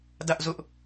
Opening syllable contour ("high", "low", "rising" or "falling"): high